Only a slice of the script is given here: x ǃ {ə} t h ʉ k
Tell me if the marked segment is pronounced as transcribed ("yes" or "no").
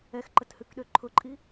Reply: yes